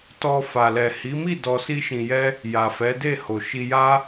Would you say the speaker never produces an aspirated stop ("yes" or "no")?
yes